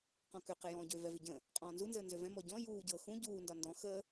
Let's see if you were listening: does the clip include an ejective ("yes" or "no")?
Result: yes